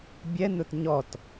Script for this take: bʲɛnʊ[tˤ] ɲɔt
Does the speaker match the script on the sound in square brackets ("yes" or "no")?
no